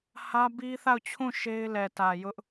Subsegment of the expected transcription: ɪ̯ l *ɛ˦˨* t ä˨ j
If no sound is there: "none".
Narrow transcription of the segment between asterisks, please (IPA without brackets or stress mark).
ɛ˨